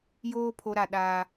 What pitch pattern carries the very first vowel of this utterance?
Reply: high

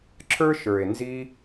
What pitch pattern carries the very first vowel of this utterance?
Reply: high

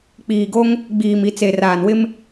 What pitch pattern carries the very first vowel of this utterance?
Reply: low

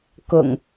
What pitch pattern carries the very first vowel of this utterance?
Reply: low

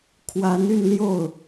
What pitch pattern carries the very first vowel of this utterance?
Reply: rising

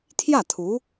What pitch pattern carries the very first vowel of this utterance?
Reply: falling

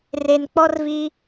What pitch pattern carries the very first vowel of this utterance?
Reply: low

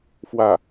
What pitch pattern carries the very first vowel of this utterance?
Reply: falling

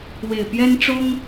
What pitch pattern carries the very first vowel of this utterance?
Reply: low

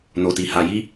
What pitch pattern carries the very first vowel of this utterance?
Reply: low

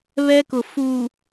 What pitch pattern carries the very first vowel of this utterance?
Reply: high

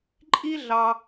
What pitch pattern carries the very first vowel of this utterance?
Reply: high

